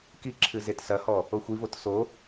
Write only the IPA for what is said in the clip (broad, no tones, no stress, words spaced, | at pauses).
kiǁʰɨ zetsɐhɔ | oxʷivot so